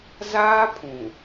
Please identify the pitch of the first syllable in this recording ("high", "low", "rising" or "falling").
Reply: high